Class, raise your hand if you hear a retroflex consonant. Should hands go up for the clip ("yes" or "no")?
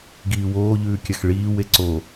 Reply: yes